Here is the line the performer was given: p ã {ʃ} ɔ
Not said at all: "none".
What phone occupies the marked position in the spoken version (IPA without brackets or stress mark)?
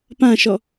ʃ